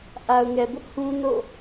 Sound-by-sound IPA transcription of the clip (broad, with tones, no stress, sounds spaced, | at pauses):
ʔ a˨ ʊ̯ ŋ ɛ˨ b ʊ˦ ʔ h ũ˦ n o̰˦˨